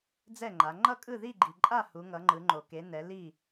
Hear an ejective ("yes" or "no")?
yes